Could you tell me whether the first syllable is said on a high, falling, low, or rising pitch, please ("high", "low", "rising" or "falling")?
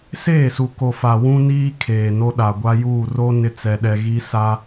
falling